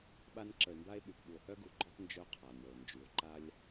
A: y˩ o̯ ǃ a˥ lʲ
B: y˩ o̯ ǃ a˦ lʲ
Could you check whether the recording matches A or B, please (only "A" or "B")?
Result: A